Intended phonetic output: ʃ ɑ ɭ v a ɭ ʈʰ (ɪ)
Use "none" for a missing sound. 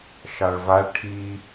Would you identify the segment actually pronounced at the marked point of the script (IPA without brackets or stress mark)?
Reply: i